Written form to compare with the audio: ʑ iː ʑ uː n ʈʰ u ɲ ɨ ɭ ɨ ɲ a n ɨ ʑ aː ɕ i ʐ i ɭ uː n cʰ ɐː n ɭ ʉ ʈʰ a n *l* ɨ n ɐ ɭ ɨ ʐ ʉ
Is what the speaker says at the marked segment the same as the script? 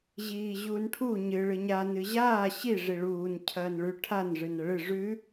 no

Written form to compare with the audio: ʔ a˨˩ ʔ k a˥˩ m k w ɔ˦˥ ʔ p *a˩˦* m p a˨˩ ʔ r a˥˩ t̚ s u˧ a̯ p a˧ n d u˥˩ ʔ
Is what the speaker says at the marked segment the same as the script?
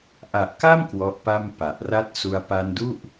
no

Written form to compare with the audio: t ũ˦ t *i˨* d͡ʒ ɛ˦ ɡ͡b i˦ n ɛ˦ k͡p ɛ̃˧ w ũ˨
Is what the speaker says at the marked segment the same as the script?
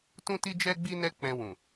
no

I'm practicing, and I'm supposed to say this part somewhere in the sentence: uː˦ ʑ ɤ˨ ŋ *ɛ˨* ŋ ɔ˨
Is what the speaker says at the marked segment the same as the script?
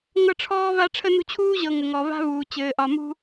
no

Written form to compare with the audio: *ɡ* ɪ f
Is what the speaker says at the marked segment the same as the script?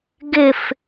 yes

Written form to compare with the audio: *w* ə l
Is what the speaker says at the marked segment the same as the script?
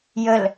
no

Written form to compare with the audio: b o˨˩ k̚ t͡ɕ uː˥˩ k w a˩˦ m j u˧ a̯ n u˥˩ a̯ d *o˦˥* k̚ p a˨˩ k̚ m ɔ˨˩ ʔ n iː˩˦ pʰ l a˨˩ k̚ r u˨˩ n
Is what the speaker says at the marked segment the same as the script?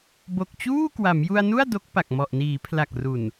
yes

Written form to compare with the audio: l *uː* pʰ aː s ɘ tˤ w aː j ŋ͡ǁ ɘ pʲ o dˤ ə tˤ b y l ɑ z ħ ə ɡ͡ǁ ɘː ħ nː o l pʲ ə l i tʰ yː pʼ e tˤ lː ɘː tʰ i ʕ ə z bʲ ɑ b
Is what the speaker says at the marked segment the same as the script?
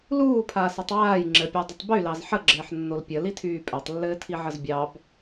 yes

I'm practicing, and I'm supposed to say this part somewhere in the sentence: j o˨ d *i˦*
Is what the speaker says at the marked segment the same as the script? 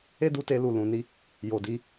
no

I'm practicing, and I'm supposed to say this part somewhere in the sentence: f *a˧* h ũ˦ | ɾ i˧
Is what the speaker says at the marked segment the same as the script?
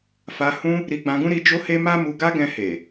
yes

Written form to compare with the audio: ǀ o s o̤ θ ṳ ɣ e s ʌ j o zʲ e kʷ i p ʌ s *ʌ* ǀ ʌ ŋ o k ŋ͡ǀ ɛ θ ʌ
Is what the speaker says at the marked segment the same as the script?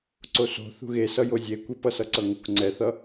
yes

